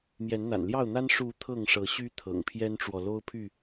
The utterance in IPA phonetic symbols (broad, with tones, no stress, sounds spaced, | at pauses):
m j ɛ˨˦ n n̪ a̰˨˩ n l j ɑ˥˨ ʊ̯ n̪ a˦ n ʂ u˨˦ t̪ʰ ɤ˥˨ ŋ ʂ ɤ˨˦ ɕ y˦ t̪ʰ ɤ̰˨˩ ŋ pʰ j ɛ˦ n ʈ͡ʂ w ɔ˨ l o˦ ʊ̯ pʰ y˥˨